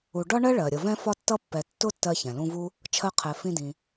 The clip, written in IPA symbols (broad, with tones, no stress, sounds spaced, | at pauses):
u˨ ɖ ɒ˥ ɳ ɜ˥ ɭ ɜ˩ ɾʲ ʌ˨ v ɛ̃˥ f ɒ˥ tː ʌ˥ pː ɛ˨ tː ʊ˥ tː ɜ˦ ç ɛ̃˩ l ũ˦ v u˥ | t͡ʃʰ ɜ˦ qʰ ɛ˨ f ĩ˦ d ĩ˨